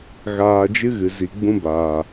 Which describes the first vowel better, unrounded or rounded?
unrounded